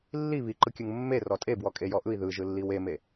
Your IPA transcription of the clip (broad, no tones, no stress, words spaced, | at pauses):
lːi βiǃɯkʲɯŋ mːe rɔtʼe bwɔkʼejɔʔɯi̯ ðɯʒɯ lːiweme